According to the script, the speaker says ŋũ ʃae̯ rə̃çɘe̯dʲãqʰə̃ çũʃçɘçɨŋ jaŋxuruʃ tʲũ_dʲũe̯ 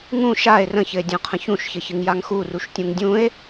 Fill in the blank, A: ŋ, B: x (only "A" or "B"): A